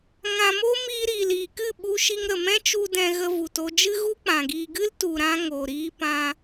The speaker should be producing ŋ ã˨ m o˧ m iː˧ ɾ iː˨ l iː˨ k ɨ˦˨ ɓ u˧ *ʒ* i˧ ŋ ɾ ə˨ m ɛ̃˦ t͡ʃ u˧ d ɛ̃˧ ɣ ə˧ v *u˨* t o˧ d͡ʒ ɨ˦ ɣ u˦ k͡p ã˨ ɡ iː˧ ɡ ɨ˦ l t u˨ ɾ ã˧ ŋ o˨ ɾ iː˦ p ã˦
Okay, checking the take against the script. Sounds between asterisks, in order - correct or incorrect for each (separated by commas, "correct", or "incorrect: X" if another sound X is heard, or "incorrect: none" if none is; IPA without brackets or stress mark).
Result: incorrect: ʃ, correct